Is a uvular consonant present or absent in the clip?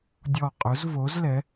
present